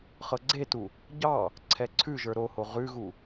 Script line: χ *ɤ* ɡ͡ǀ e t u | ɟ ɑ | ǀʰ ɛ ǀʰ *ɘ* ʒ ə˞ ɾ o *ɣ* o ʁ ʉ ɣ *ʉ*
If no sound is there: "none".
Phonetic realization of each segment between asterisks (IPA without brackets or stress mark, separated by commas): ɤ, ʉ, h, u